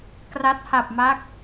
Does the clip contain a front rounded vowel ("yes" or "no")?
no